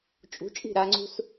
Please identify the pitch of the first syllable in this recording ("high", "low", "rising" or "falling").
rising